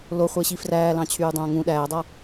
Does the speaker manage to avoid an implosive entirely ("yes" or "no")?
no